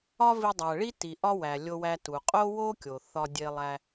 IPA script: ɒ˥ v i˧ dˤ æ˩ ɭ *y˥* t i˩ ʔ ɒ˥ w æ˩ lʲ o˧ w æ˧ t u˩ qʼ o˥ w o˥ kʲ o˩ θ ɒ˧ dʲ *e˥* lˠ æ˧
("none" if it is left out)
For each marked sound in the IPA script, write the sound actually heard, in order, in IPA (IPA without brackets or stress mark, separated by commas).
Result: i˥, e˧